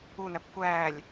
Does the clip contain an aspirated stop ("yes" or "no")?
no